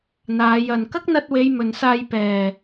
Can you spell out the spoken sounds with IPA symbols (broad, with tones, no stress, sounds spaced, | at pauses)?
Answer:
n̪ aː˨˧ j ɐ˨ n k ɐ˥ k̚ n̪ ɐ˧ t̚ w e˨˧ j m ɵ˨ n s aː˧ j p ɛː˨˩